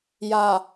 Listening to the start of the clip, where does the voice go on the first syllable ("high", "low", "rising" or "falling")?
low